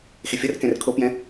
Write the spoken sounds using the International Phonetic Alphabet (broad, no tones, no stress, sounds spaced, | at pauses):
x e fʲ ʌ r k ɛ̃ r kʰ o p j ɛ̃